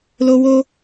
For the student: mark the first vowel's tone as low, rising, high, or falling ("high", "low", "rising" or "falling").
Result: high